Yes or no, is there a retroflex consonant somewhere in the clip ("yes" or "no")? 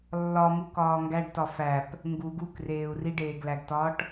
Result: yes